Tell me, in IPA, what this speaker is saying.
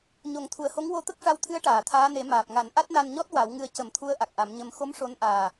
ɲo˨˩˦ŋt̪ʰu˨˩ə̯ho˧˥ŋ wo˧˥t̪ə˦˥k̚ʂa˧wt̪ʰɨ˧˥ə̯ ʈaː˨˩˨t̪ʰaː˧˥ne˨˩˦ maː˨˩p̚ŋa˨˩˦n ʔa˦˥t̚na˧nɲɔ˦˥t̚ wa˨˩˦wŋɨ˧ə̯ cə˨˩˦mt̪ʰu˧˥ə̯ ʔa˨˩k̚ʔa˨˩˦mɲə˧m xo˧˥m ʂo˧˥nʔaː˨˩

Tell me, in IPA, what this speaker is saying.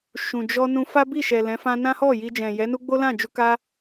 ʃũ˨ d͡ʒɔ˧nũ˧ fa˦bi˦˨ʃɛ˨ lɛ̃˨˦fã˦ nã˦hɔ˦˨ji˧ d͡ʒɛ̃˨jɛ˨˦nu˦ ɡ͡bo˦lã˦˨d͡ʒu˧ ka˦

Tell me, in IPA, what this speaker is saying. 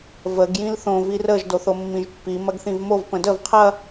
vəɡ jĩlθõ virəʒ doθomːĩʒpːi mɐɡθĩvmov pə̃dəv qʰɐ

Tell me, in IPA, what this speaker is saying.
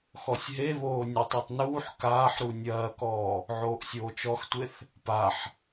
xɔsʲɦeβoː nʲɐtˤitˤ nuːħ kaːħɾu nʲɐːkɔː | ʕoːʔsʲoːt͡ʃɔxtʷeθ | paħ

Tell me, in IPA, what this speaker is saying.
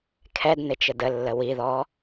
kʰɛd nɪt͡ʃədəlːə wiðɔ

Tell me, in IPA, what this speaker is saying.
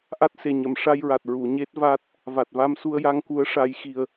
ʔa˦˥t̚se˨˩ɲə˨˩˨m ʂa˧jɹa˨˩t̚ ɹu˨˩˨ɲe˦˥t̚ vaː˦˥t̚ | va˨˩t̚va˧m su˧ə̯ja˧ŋku˧˥ə̯ ʂa˧˥jxi˧ə̯

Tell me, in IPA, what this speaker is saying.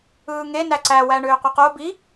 ɯːŋe næǀæ wæɳøːqʷiqo bi

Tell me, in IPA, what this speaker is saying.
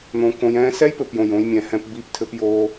n̪õ˧kõ˧j ɛ̃ː˧sɛ˦jpɘ˨p jõ˨jõ˧jmʲɛ̃˨hɛ̃˧p bi˦˨ptʰɘ˧pjoː˧

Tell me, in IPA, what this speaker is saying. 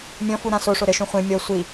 mʲɔ̃fu ɾãsoʂo ɾɘʃũ χʷẽ mʲɔ sʷi

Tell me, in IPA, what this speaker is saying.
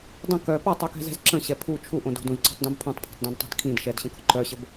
dˤə̃ kœ pɔtˤukɛ̤zɛ̤z ǁə̃ɕɛ pʰu t͡ʃʰuʔõd o̤dũzǀɔ̤tˤdũb pʰũtˤpʰɔ̤tˤdõdtˤa̤d kʰĩd ʃɛdɕə̃kɔ̤ ǃœɕəb

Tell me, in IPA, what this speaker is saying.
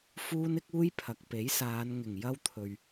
fuː˥n ɪ˥k̚uː˥jpʰɐ˨k̚ pe˨˥jsaː˨˧nŋɪ˨˩ŋ jɐ˥wt̪ʰɵ˨ɥ

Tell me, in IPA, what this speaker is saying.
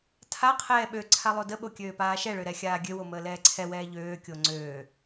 tʰaqʰɛː ɓøǀʰa lˠodəɓo kʲøːpaːʃɛɭø ɾɛxʲaːɡʲøwo məːlɛːǀʰɛwɛː ʎøːkʲo ŋ͡ǀøː

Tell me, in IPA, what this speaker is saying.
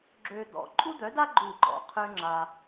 ɡ͡ǁø˧d̪ɔ̰˨ ǃʼu˦d̪œ˨˦da˦ ɡ͡ǃu˦˨ɡ͡ǃɔ̰˨qʰø˦ŋ͡ǁa˧

